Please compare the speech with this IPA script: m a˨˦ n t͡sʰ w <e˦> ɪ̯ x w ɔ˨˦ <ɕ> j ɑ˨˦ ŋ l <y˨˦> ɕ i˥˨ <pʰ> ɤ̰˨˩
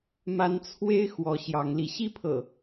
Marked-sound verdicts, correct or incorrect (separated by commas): correct, correct, incorrect, correct